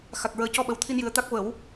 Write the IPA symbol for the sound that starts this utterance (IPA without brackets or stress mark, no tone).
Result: x